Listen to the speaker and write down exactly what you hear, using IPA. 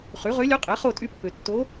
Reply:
χy˩˥ʁø˧˥lʲø˧˥ qʼe˩˥χo˦˨tʼy˦˨pːø˨ tːo˧˥

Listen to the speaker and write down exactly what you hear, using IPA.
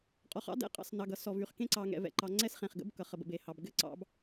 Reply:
qʼɔ˨χɑ̰˦dɛ̰˨˦ qʼɑ̰˨s nɑ˨ɡʌ˨ sɔ˨vy˨χkẽ˦ ǀɑ˨ŋɛ̰˨vɛ̰˨ǃɑ˨ ŋ͡ǀɛ˦sχẽ˨χɡə̰˦b kʌ˨χ ə˨bə̰˨be˨hɑ˨b ɡɘ˦ǀɑ̰˨˦b

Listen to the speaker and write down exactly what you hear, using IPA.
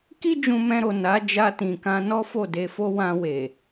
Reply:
ki˦ d͡ʒũ˧mɛ̃˧ɾo˨ na˨˦ d͡ʒa˧tĩ˨kã˧ nɔ˦fo˦˨de˧fo˦ wã˧we˨

